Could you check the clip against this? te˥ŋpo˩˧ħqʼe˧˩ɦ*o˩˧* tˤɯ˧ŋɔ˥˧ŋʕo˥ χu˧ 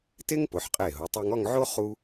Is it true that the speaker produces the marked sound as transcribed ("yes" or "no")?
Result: yes